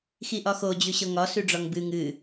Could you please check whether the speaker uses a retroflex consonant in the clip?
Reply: yes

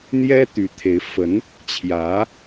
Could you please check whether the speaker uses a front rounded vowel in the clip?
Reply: yes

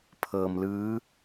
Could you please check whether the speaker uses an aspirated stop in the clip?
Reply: yes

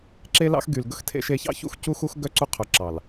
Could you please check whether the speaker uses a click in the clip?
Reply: yes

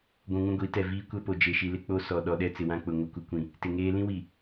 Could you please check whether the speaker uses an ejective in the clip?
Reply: no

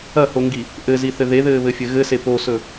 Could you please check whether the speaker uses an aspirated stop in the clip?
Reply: no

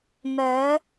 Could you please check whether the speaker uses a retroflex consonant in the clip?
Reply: no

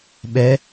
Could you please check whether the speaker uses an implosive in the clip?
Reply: yes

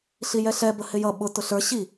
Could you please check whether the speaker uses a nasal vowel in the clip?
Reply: no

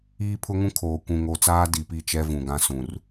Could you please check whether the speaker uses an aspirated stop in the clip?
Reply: yes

